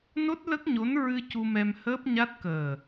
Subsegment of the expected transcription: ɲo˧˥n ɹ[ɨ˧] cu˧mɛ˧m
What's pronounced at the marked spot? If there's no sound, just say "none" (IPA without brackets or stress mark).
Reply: ɨ˧